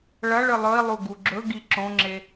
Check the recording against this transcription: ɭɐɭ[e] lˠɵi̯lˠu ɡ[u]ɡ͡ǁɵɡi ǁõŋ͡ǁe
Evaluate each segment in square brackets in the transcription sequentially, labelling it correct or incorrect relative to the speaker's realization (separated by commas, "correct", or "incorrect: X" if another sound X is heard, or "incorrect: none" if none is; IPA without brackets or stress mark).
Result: incorrect: ɨ, correct